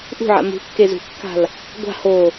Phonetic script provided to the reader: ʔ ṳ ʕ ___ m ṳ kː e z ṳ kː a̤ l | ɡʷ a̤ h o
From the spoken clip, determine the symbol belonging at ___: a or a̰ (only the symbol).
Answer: a̰